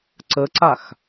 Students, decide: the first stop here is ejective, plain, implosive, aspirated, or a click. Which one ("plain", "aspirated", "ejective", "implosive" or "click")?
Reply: click